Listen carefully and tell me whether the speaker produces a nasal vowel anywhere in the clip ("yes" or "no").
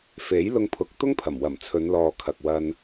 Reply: no